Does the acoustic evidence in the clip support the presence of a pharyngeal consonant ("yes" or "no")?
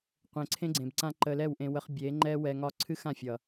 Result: no